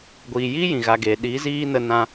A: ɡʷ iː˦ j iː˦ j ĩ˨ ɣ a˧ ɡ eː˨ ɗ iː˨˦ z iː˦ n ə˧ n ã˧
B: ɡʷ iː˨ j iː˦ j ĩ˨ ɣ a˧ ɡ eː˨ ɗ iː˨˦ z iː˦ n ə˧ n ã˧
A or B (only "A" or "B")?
B